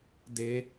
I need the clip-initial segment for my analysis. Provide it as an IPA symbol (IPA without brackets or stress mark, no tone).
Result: d